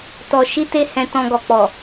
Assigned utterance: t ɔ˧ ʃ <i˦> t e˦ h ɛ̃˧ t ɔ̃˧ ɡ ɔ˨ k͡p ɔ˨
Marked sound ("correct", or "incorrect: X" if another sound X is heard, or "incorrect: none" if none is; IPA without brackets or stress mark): correct